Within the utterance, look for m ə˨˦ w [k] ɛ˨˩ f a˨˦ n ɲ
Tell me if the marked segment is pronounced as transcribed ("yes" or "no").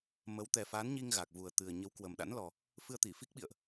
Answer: no